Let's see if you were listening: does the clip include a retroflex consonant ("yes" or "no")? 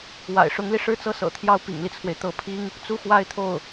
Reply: yes